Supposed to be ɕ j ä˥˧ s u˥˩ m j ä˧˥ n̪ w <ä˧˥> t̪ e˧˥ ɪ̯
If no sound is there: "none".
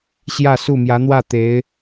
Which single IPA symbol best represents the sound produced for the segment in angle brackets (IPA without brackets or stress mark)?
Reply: ä˥˩